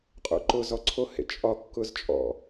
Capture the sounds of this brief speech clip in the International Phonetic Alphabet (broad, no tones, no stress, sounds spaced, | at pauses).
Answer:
qʼ o̰ ǃ ʊ z ɔ ǀʰ o h ḛ t͡ʃʼ ɒ kː ʊ z t͡ʃʼ ɔ̰